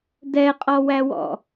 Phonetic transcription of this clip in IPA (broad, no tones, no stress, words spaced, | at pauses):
dɛqʼɔwæwɔ̰